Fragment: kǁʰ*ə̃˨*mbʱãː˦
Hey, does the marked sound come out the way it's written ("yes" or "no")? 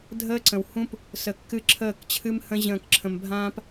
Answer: yes